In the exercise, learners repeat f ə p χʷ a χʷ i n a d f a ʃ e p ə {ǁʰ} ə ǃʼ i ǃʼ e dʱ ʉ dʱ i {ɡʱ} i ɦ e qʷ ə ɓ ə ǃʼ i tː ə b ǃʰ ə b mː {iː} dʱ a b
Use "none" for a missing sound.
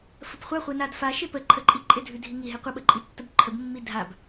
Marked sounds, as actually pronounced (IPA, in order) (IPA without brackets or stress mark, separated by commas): ǃʰ, ŋ, i